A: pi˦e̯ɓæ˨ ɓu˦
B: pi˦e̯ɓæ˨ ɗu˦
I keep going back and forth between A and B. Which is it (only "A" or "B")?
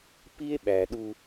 B